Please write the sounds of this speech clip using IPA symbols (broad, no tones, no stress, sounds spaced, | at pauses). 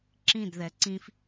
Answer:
ǁ ĩ d ð ɛ ǀ ĩ f